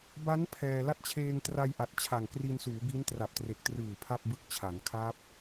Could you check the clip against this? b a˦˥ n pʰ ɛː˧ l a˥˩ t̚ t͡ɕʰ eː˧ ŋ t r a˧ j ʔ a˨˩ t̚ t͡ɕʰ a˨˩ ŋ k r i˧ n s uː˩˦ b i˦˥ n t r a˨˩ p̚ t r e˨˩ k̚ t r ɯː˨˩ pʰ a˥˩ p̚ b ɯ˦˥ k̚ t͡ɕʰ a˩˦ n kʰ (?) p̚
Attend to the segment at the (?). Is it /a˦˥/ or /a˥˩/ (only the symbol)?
a˦˥